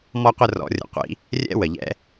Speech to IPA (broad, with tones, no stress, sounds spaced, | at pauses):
m ɔ˥ qʷ ə˥ r ɔ̰˧˥ rʲ ə̰˧ qʷ ḭ˧˥ | rʲ ɛ̰˥ w ə˩ ʎ ɛ̰˧˥